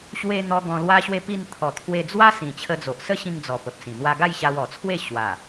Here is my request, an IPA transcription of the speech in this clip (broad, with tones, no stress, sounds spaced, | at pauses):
ɕ w e˧ n̪ ɔ˧ ɡ ɔ̃˧ l w a˦ ɕ w e˥˧ p i˥˧ n t̪ʰ ɔ˨˩ t̪ʰ w e˧ d͡z w a˦ s ĩ˨˩ t͡ɕʰ ə˧ d͡z o˨ ʔ s ə˦ ɕ ĩ˧ ŋ d͡z ɔ˨˩ p ə˨ p̚ s ĩ˨˩ n̪ w a˧ ɡ a˥˧ j ɕ a˧ w ɔ˨˩ t͡sʰ w e˥˧ ɕ w a˨˩